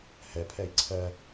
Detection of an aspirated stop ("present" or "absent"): present